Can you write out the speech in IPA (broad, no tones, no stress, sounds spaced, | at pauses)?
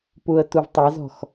p u ə̯ t u v tˤ ɛ z ɔ̤ x